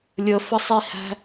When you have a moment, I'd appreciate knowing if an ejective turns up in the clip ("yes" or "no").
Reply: no